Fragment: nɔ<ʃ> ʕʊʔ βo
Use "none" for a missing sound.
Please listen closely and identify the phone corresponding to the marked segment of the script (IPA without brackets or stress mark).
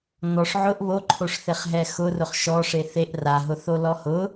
ʂ